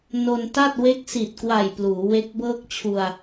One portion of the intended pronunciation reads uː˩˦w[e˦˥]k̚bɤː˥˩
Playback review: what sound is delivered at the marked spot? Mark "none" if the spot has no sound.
e˦˥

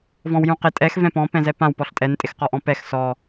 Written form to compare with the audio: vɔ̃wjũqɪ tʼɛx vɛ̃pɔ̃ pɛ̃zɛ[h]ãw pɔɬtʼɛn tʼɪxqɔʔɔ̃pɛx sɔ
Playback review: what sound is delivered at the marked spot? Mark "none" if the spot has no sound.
p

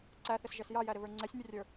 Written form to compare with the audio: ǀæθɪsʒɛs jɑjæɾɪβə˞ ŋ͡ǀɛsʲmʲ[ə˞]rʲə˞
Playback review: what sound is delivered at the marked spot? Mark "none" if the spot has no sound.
ə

